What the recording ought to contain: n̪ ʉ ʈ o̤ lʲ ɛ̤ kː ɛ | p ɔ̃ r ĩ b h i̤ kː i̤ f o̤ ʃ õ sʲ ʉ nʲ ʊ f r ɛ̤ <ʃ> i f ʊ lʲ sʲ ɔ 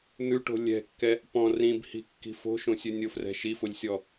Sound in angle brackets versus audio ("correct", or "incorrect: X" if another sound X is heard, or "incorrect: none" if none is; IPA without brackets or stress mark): correct